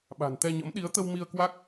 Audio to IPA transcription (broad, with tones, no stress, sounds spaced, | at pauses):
ɓ a̤˨˩ n t̪ ɛ˧ ɲ ə̰˧˥ m ɗ i˨˦ ə̯ t̪ ə˧ w m i˧ ə̯ k w a˦˥ k̚